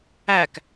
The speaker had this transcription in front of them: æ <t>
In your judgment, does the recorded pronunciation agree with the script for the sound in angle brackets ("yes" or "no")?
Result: no